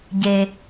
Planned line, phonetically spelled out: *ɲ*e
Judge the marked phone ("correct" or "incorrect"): incorrect